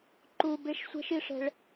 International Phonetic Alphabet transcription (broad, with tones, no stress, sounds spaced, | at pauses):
ǃ u˧ b e˦˥ ʃ sʷ ɛ̤˦˥ ʃ i˧ ʂ ɛ̤˧ ɭ